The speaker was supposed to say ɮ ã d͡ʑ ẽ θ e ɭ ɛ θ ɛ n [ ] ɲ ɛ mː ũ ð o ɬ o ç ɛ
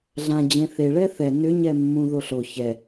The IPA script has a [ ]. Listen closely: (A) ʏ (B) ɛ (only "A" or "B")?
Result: A